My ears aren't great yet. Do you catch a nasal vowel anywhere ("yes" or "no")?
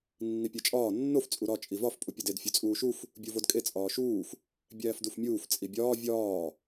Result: no